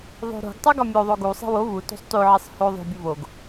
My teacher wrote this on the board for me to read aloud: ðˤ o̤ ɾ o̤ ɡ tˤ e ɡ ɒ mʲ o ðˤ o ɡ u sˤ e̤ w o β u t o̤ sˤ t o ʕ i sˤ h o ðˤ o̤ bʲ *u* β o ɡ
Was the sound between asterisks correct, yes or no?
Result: yes